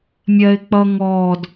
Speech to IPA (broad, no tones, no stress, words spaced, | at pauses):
mʲɜɪ̯ k͡pʌ ŋɔd